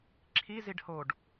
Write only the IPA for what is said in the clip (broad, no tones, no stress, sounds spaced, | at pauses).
ǁʰ i z i ɖ h o ɖ